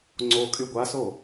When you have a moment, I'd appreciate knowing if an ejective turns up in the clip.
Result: yes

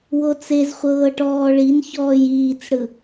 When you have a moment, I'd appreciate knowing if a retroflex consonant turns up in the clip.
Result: yes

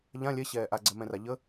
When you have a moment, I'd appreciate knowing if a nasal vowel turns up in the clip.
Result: yes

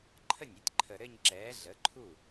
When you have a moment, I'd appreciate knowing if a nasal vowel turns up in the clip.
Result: no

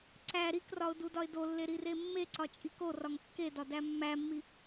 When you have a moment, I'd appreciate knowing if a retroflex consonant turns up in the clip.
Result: no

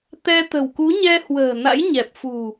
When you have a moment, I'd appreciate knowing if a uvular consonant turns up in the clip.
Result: no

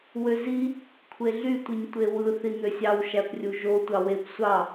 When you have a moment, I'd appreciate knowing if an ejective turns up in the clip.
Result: no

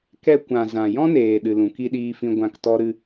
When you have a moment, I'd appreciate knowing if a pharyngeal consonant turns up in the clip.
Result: no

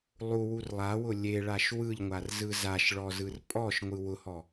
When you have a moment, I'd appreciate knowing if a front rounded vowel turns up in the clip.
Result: no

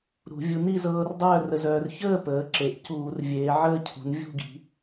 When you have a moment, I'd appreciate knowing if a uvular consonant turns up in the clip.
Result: no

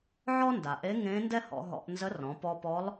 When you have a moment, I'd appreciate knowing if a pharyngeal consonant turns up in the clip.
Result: yes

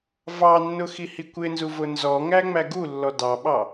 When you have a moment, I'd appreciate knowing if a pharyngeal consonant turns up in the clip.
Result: no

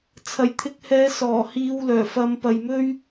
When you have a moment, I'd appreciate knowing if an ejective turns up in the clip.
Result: no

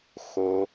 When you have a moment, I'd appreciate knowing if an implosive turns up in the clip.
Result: no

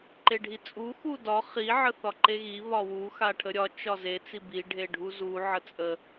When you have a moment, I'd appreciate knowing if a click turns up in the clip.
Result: yes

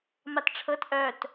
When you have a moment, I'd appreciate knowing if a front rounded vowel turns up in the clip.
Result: yes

